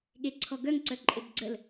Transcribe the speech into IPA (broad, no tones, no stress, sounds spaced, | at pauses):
ɠ e ǀʰ ɔ ɡ œ ŋ ǀ œ ǃʼ e b ɡ͡ǀ ə l